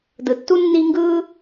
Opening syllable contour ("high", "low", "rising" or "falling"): low